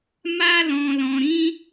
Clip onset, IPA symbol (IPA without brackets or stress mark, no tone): m